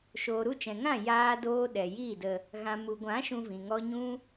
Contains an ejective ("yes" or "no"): no